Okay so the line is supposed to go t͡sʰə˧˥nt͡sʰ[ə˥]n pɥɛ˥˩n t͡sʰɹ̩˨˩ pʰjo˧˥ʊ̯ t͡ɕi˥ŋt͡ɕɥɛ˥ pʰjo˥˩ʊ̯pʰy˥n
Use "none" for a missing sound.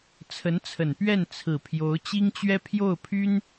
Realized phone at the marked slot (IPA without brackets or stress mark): ə˨˩